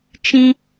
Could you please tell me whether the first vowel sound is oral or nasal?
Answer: nasal